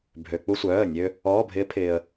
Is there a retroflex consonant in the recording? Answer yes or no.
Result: no